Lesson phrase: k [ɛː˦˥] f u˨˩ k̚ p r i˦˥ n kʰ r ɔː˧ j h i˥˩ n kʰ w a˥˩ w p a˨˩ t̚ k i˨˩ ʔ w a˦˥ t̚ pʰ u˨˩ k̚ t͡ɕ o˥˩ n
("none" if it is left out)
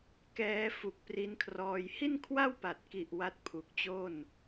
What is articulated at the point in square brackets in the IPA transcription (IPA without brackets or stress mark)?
ɛː˦˥